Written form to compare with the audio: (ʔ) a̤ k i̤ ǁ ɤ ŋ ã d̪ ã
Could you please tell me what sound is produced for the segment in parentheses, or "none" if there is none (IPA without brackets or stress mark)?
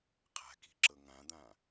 qʰ